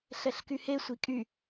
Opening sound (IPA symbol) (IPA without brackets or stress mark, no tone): ɬ